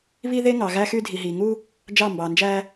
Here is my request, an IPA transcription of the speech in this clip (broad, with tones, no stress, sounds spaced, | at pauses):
β i˦ ð e˦ ŋ ɑ˨ ɣ æ˦ x y˦ dʱ i˨ ɦ iː˨ ŋ uː˦ | d͡ʒ ɑ˦˨ m b ɑː˨ n d͡ʒ æː˦